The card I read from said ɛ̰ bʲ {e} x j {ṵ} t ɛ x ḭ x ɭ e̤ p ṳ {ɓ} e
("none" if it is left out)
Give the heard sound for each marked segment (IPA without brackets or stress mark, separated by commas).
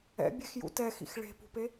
e, ṵ, p